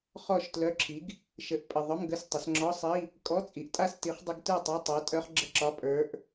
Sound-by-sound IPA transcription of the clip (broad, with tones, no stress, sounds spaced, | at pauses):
χ ɔ˥˨ ʃ t l œ˧˥˧ ǁʰ i˨˥ ɡ | ʃ ə˨˩ ʔ pʼ ə˨˩ ðˤ œ˧˥˧ m ɡ ə˧˥˧ s tˤ ə˩˧ s ŋ͡ǁ ɔ˧˥˧ sˤ i˧˥˧ | kʼ ɔ˧˥˧ t͡sʼ i˩˧ ʔ tʼ a˥˨ s t i˨˥ χ dˤ ə˦˥ ɡ t ə˞˥˨ tˤ a˧˥˧ tˤ a˨˥ tʼ œ˦˥ χ ɡ͡ǁ ə˥˨ ǁ ɒ˧˥˧ pʼ ə˞˨˥ ʔ